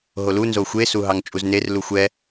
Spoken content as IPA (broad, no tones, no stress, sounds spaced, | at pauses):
ɦ o l u n z o xʷ e s u ɦ ɑ ŋ t͡ʃʼ u z n e r l u xʷ ɛ